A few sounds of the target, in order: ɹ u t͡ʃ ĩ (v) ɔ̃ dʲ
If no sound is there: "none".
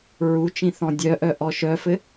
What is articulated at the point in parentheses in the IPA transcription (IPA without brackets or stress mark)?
θ